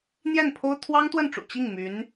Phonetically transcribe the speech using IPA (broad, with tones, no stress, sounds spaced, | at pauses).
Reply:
n̪ j ɛ˥˩ n pʰ o˥ ʊ̯ t̪ʰ w ɑ˥ ŋ t̪ w ə˥˩ n ʈ͡ʂ ṵ˨˩ t͡ɕ i˥˩ ŋ m y˧˥ n